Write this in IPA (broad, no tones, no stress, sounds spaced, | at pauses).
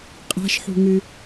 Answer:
qʼ a̤ ʃ ħ ṳ ŋ ɨ